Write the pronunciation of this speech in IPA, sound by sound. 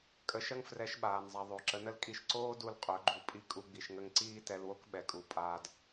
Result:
kʼ ə˧ ʃ ɐ˦ ŋ f r ɛ˨˦ ʃ ɓ aː˨ n zˤ a˨ ðˤ o˨ ǁ ə˨˦ n ə˦ l kʼ i˧ ʃ ǀ oː˦ d u˧ l qʼ ɵ˨˦ ɡ͡ǃ u˧ pʼ i˦ kʼ u˧ ɡ͡b i˨ ʃ ŋ ə˧ ŋ ǀ iː˦ t ɛ˧ l w o˦ k ɓ ɛ˨ kʼ u˨ pʼ aː˧ d

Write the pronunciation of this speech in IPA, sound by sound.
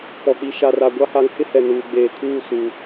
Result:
p ɔ˨ k͡p i˨ ʃ a˨ r a˨ ɡʷ a˦ h a˨˦ ŋ h ɪ˦ h ɛ˨ n uː˨ ɡ͡b eː˨ kʰ uː˦˨ s uː˨

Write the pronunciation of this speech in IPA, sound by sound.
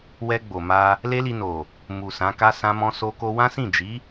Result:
w ɛ˧ ɡ͡b o˨ m a˧ | l e˦ l i˧ n o˨ | m u˨ s ã˨˦ k a˦ s ã˦ m ɔ̃˦ s o˧ k o˧ w ã˦ s ĩ˦˨ d͡ʒ i˨˦

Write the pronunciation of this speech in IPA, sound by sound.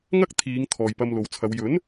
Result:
ŋ ɐ˥ k̚ t̪ʰ iː˨˧ ŋ t̪ʰ ɔː˨ j p ɐ˧ m l o˨ w t͡sʰ ɐ˨˧ w j ɵ˨˥ n

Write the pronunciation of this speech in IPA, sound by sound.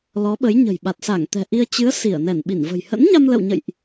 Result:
l ɔ˨˦ ɓ ə˨˦ j ɲ ə̤˨˩ j ɓ a˨˩ t̚ s a˧˩ ŋ t̪ ɛ̤˨˩ ʔ i˧ ə̯ t͡ɕ ɨ˨˦ ə̯ s i˧˩ ə̯ n ɛ˧˩ n ɓ i˧˩ n v ə̤˨˩ j h ə̰˧˥ n ɲ a˧ m l ə̰˧˨ w ɲ ə̰˧˨ j ʔ

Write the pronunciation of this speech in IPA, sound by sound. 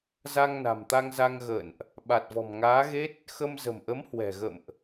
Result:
z a˧ ŋ n a̤˨˩ m t̪ a˧ ŋ z a˧ ŋ ɣ ə̰ː˧˨ n ʔ | ɓ a˨˩ t̚ v ɔ̤˨˩ m ŋ aː˨˦ ɣ e˦˥ t̚ | x ə˧ m z ə̤˨˩ m ʔ ə˨˦ m h w ɛ̤˨˩ ɣ ə̰˧˨ m ʔ

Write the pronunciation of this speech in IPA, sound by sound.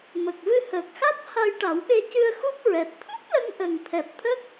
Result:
m ə˨˩ k̚ v ɨ˧ h əː˨˩ k̚ x a˦˥ t̚ h a˧ j ʈ a˨˩˦ w ɓ e˧ c ɨ˧ ə̯ x u˦˥ p̚ ɹ ɛ˨˩ t̚ t̪ʰ u˦˥ p̚ l ə˧ ŋ ʔ ə˨˩ ŋ t̪ʰ ɛ˨˩ p̚ t̪ʰ ə˦˥ k̚

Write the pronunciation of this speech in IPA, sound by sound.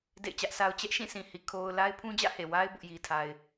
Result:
d ḛ˦˨ ɪ̯ t͡ɕ ä˦ ʔ sʰ a˦ ʊ̯ t͡ɕ ɛ˦ ʔ ʃ ĩ˦˨ sʰ ĩ˨ h i˨ kʰ o˦ ʊ̯ l a˦ ɪ̯ pʰ ũ˦ d͡ʑ ä̰˦˨ h e˨ w a˦ ɪ̯ b ʊ˦ ʔ j i˦ tʰ a˦ ɪ̯

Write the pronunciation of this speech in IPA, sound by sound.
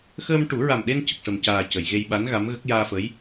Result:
x əː˧ m ʈ u˨˩˦ ɹ a˨˩ m ɗ e˧ n c ə˨˩ k̚ ʂ ə˨˩ m c aː˨˩ c ə˨˩˨ j ɣ e˧ j ɓ a˧˥ n ɣ a˧˥ m ɣ ə˦˥ k̚ j aː˧ f ə˧˥ j

